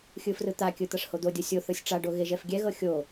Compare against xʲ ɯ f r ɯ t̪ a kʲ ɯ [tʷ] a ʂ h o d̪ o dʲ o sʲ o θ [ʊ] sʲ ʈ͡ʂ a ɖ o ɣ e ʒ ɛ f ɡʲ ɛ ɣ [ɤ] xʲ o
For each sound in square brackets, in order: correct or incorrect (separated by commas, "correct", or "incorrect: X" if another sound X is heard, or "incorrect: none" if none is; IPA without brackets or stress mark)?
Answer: incorrect: t̪, incorrect: ɯ, correct